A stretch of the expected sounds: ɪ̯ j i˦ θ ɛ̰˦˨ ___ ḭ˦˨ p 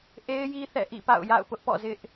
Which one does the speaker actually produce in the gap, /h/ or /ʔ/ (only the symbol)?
ʔ